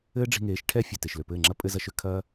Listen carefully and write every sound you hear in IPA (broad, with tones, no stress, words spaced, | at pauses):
ɘː˦ɖ͡ʐi̤˧ŋeː˨˦ʃ ʈʰɛ˦ fʲɘ˨ te˨ʃlø˨pɘː˦˨ŋ͡ǁɐ˦ pʼɘ˧zɐ˧ʃø˧ kʰɐː˦